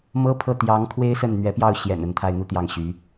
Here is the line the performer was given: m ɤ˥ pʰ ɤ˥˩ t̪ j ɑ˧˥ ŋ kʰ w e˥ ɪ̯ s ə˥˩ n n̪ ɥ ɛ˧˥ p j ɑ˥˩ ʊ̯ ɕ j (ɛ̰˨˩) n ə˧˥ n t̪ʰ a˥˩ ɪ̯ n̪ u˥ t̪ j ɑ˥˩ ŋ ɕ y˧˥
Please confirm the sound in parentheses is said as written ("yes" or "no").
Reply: yes